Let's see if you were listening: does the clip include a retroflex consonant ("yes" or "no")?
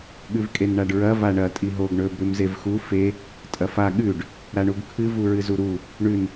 yes